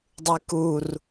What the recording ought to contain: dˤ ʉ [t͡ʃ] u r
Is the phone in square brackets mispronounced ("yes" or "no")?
yes